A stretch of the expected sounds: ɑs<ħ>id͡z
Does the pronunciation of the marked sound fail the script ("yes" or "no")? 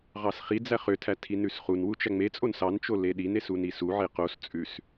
yes